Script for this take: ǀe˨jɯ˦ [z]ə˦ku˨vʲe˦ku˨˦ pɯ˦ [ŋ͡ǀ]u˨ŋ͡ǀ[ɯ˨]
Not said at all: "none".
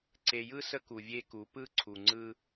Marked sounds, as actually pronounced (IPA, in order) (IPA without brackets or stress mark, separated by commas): s, ǀʰ, ɯ˦